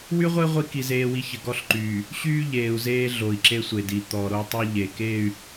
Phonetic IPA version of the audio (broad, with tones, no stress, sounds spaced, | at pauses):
w y˦ ʁʷ e˦ ʁʷ i˦ k i˨ z eː˨ w i˨ ç ə˨ ɡ ɔ˦ ɬ ǃ yː˨ | ɕ yː˦ ʎ eː˨ u̯ z eː˦ ɮ o˨ i̯ ǁ e˦ sʷ e˨ d i˨ t̪ ɔ˨ ɾ o˦ tˤ e˦ ʎ e˨ k e˦˨ y̯